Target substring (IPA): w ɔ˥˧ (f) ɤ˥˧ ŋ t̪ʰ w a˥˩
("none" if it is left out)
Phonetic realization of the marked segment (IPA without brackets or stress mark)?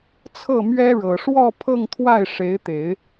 pʰ